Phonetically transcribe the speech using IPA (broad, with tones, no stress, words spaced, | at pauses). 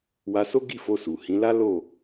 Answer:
wa˧so˦ɡi˦˨ fo˧su˨ hĩ˨˦la˦ lo˦˨